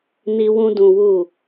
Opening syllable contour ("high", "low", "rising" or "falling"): high